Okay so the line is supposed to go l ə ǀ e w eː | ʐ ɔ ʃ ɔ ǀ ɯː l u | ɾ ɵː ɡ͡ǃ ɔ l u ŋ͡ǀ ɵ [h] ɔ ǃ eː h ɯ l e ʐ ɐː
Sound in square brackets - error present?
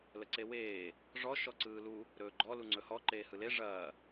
no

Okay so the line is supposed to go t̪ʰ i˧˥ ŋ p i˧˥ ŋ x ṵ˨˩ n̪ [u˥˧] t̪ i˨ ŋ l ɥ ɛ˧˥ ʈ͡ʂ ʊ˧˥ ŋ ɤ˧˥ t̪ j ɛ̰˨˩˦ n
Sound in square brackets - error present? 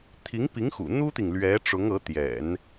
yes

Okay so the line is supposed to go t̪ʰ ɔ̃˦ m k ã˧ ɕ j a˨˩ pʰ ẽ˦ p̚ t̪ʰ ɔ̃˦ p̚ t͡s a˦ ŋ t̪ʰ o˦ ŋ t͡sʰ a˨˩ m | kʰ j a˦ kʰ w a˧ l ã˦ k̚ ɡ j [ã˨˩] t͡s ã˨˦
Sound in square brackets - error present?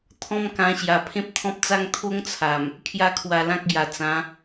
yes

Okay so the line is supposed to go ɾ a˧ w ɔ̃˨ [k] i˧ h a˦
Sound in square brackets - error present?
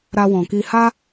no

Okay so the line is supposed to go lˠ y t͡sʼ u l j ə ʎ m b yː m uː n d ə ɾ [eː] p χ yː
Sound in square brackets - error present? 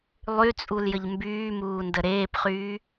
no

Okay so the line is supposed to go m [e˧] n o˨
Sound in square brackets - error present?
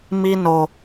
yes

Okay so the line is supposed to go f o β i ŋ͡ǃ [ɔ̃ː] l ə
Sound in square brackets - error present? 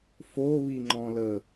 yes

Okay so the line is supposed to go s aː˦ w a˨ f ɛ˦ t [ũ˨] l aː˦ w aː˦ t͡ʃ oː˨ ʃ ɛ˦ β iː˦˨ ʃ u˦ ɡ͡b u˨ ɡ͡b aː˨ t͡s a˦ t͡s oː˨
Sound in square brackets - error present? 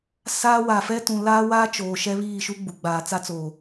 no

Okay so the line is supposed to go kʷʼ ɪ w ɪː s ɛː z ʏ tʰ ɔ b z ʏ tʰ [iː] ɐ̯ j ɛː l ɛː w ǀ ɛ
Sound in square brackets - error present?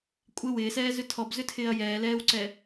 yes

